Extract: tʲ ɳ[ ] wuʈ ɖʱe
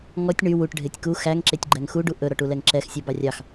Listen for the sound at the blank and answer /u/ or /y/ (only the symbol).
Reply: y